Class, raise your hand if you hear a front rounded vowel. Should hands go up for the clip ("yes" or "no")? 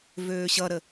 yes